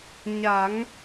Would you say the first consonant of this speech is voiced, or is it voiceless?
voiced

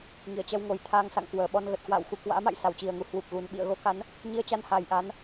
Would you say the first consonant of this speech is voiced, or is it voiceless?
voiced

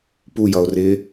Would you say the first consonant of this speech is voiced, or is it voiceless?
voiceless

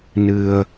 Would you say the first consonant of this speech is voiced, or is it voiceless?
voiced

